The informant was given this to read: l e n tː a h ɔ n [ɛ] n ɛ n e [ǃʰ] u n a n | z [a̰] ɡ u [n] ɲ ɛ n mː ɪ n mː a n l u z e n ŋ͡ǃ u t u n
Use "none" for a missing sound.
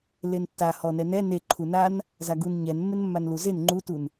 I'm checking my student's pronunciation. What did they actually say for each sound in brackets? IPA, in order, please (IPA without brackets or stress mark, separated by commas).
ɛ, ǃʰ, a, n